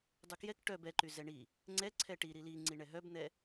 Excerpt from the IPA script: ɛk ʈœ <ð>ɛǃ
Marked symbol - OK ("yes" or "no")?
no